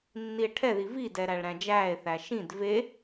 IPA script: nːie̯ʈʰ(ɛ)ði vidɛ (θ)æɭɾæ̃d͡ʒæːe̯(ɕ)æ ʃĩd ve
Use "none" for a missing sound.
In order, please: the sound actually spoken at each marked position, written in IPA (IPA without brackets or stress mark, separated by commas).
ɛ, ɾ, θ